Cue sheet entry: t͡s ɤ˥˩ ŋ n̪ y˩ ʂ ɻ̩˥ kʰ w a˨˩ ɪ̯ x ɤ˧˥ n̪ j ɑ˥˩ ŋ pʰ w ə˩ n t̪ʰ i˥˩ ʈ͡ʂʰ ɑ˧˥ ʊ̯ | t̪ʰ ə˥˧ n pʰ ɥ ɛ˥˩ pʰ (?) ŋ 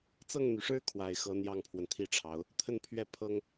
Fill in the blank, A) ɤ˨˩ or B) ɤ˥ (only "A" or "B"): B